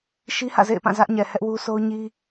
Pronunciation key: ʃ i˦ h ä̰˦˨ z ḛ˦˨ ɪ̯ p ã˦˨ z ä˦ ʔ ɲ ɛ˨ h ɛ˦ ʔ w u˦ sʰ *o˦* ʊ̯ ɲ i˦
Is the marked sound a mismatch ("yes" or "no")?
no